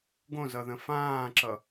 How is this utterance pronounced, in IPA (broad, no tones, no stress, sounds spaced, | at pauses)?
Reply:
ɡ õ z ʌ ð ə̃ f ãː ǁ ʌ